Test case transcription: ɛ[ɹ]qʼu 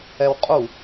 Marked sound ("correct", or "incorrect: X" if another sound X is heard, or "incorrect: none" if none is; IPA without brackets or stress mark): incorrect: w